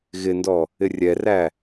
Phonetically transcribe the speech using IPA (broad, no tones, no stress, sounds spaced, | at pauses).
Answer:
ɣ ɪ n d ɔ | ɪ rʲ ɛ r æ